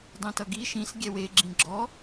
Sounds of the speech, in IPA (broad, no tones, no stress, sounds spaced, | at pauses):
dˤ ĩ t ʌ ɡ i ʃ ĩ s ɡʲ ɛ w e ɡ͡ǁ ĩ ɡ͡ǁ ɔ